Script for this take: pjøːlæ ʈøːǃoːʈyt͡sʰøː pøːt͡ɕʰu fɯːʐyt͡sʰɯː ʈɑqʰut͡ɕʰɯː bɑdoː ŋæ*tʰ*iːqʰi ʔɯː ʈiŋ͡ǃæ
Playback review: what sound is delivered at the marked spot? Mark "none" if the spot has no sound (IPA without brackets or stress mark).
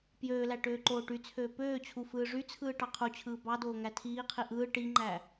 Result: tʰ